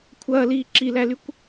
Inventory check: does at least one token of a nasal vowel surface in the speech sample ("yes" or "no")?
no